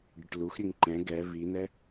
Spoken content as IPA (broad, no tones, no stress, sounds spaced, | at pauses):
ɖ ɨ ʈ l u x ɾʲ ʉ ŋ ǃ ɛ̃ ɡ ɛ v i n̪ ɛ